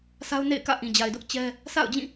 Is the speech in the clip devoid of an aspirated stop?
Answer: yes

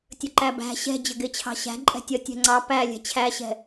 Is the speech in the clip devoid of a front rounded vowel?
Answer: yes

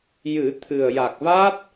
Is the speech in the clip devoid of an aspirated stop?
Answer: no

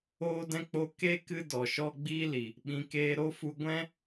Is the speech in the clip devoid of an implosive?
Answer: no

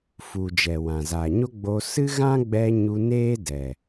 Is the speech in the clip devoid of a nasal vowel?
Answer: no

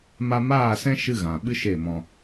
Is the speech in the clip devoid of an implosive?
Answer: no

